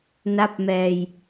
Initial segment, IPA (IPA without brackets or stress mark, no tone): n